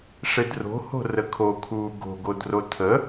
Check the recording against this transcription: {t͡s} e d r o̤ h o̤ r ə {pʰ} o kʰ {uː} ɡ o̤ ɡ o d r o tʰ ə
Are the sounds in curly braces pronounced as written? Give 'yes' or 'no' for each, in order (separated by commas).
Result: no, no, yes